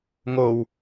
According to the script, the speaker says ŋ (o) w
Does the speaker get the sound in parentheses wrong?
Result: no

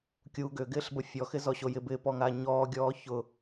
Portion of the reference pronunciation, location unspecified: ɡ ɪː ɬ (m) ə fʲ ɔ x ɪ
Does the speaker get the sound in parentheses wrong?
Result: yes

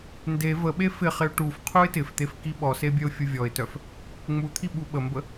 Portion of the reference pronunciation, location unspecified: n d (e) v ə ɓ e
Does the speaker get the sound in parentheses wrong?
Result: no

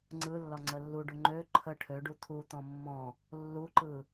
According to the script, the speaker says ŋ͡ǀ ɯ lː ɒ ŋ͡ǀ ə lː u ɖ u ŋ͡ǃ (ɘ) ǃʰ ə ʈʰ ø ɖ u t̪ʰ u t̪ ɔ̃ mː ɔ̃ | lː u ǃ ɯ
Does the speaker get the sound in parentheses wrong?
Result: yes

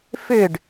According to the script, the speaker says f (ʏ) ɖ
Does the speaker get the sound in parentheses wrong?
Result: no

